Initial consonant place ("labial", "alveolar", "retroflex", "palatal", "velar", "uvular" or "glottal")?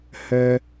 glottal